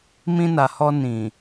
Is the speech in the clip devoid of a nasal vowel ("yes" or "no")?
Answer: no